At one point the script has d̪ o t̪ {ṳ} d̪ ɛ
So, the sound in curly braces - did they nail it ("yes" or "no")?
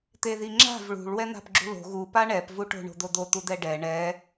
no